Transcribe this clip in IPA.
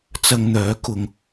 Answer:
t͡s ɐ˧ ŋ n̪ œː˨˥ k ʊ˧ ŋ

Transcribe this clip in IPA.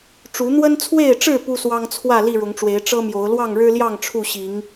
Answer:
ʈ͡ʂ u˨˦ n̪ w ə˦ n t͡sʰ w e˥˨ ɪ̯ ʈ͡ʂ ɻ̩˥˨ p u˦ s w ɑ˦ ŋ t͡sʰ w ä˥˨ l i˥˨ ɻ ʊ˨˦ ŋ ʈ͡ʂ w e˨˦ ɪ̯ ʈ͡ʂ ɤ˦ m j o˨˦ ʊ̯ l w ɑ˥˨ ŋ ɻ ɻ̩˦ l j ɑ˥˨ ŋ ʈ͡ʂʰ u˥˨ ɕ i˨˦ ŋ

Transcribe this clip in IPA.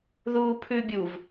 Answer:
ð uː pʰ ʉ bʲ u v

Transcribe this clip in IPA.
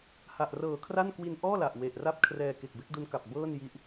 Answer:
h a˨˩ ʔ r ɤː˨˩ kʰ r a˥˩ n k w i˧ n ʔ ɔː˥˩ l a˨˩ ʔ w e˨˩ ʔ r a˥˩ p̚ kʰ r ɛː˧ k e˨˩ k̚ b e˦˥ k̚ d u˦˥ n k a˨˩ p̚ b ɤː˥˩ n j i˦˥ ʔ

